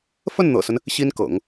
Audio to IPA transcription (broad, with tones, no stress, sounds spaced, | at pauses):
f ə˥˩ n n̪ ɤ̰˨˩ s ə˦ n | ɕ i˥ n k ɤ̰˨˩˦ ŋ